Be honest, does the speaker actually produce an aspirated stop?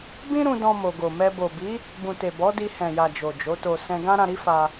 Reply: no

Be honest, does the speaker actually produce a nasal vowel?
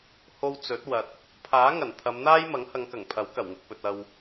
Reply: no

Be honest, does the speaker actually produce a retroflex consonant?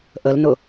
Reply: no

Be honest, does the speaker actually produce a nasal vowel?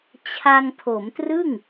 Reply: no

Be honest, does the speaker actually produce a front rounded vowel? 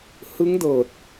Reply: no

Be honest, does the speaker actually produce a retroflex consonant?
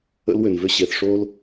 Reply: yes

